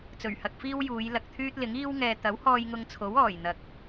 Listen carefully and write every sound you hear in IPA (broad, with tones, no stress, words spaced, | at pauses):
t͡sɵ˨˩ɥhɐ˧k̚ fiː˥w juː˨˧jlɐ˨k̚t̪ʰyː˥t̚lɪ˨˥ŋ iː˥w ŋɛː˨t̪ɐ˨˥whɔː˧j ŋʊ˧ŋt͡sʰo˨˥w ɔː˨˩jn̪ɐ˨˥k̚